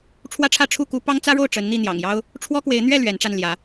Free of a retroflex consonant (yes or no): no